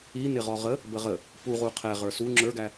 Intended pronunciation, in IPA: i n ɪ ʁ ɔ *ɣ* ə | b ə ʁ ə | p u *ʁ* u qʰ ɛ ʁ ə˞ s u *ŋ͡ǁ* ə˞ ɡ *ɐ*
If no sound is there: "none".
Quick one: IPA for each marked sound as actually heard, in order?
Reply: ʁ, ʁ, ŋ͡ǁ, æ

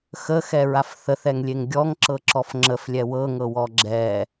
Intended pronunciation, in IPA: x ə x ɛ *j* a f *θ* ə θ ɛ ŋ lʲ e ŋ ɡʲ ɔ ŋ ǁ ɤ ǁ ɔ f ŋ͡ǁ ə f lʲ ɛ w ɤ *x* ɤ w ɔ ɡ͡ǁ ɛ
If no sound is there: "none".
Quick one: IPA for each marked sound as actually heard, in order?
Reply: ɹ, θ, ŋ

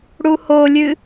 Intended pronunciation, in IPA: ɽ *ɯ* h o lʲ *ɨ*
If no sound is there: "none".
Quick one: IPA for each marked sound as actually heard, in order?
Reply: u, ɨ

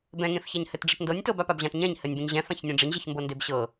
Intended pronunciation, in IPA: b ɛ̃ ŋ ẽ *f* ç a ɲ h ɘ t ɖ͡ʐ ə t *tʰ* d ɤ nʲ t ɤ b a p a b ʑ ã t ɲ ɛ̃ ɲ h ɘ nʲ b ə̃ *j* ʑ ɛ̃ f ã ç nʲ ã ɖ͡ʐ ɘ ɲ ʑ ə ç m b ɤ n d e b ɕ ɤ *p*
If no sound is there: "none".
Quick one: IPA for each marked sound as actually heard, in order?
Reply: f, n, ɲ, none

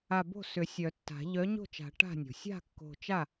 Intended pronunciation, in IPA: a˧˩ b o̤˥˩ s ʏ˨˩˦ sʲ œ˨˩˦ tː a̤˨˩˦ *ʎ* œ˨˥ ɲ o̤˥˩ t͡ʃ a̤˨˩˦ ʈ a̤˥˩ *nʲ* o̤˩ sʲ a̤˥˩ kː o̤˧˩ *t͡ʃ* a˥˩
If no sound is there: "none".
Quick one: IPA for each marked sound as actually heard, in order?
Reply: ʎ, nʲ, t͡ʃ

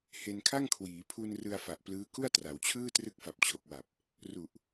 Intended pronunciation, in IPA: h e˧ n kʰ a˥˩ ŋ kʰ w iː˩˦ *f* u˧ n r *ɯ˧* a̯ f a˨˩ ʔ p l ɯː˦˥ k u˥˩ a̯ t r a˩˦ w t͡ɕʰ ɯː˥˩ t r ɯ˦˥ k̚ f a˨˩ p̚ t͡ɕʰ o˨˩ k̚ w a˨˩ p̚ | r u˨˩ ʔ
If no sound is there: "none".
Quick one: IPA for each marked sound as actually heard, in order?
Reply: pʰ, ɯ˧

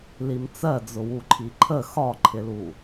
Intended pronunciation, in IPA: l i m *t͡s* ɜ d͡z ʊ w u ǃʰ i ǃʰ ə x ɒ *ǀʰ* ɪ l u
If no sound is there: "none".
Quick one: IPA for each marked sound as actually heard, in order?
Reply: t͡s, ǃʰ

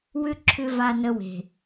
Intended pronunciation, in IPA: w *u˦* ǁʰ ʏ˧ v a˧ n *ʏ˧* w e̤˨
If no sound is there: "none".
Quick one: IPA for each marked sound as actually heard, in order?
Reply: ʏ˦, ə˧

